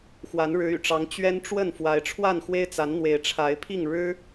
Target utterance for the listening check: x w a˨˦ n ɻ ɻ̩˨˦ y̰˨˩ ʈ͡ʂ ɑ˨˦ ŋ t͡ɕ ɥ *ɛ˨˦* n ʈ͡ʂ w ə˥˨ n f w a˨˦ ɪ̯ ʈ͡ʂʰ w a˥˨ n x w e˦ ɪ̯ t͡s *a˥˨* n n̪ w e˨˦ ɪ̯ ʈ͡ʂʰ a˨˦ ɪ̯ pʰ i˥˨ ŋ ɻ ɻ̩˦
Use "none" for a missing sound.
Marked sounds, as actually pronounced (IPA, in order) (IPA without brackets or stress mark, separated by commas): ɛ˦, a˨˦